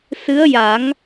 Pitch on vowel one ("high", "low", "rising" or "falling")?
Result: rising